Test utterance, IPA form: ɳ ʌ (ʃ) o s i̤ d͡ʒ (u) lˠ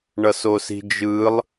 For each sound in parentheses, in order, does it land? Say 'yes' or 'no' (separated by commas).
no, no